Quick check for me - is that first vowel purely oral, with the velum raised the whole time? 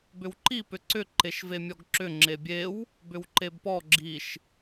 yes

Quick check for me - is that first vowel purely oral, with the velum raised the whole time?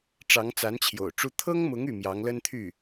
yes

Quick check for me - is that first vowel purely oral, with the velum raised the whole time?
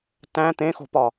no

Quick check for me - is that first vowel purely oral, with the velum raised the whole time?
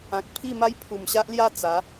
no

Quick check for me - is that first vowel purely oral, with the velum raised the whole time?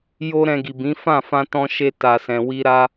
yes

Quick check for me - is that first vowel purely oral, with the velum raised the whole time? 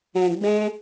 no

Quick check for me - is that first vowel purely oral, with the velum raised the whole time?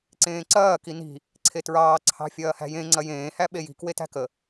no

